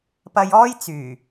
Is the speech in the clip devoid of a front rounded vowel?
no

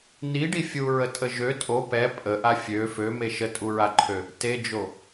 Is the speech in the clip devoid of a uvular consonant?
yes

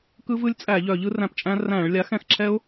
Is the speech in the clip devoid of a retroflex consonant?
no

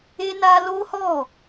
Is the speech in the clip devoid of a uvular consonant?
yes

